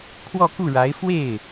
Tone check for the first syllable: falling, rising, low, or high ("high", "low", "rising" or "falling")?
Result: falling